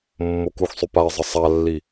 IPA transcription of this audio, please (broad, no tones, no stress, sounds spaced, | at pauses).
mː o k u x sˤ y p a ɪ̯ zˤ ə sˤ a lː i